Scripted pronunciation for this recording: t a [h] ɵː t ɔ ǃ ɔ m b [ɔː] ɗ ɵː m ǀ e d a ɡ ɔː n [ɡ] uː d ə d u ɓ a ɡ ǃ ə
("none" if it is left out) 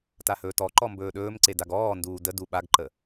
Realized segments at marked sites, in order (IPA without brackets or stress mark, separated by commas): h, ɵː, d